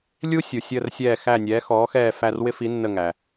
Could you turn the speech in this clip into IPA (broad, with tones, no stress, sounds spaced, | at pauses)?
lʲ u˥ sʲ u˩ sʲ əː˦˨ r sʲ ɛː˦˨ x æ˦˨ nʲ ɛː˨˥ x ɔː˨˥ x ɛː˦˨ f æ˦˨ r w ɪ˥ f i˨˥ nː ə˦˨ ŋ æ˩